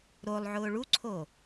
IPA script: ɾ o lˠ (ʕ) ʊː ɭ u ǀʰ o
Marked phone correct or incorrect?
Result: correct